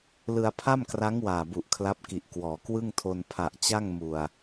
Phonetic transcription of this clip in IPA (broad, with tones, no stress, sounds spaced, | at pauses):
l ɯ˧ a̯ pʰ a˥˩ m k r a˦˥ ŋ w aː˨˩ b u˨˩ ʔ kʰ l a˦˥ p̚ k i˨˩ ʔ k w ɔː˩˦ k w ɯ˥˩ ŋ tʰ o˧ n pʰ a˨˩ ʔ t͡ɕ a˥˩ ŋ m u˨˩ a̯